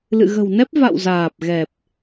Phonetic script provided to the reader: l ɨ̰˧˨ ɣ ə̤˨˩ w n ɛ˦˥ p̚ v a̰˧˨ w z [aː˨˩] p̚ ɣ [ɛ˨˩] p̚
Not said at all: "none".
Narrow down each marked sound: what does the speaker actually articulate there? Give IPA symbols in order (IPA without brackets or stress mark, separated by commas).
aː˨˩, ɛ˨˩